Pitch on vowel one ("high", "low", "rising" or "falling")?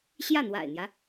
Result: falling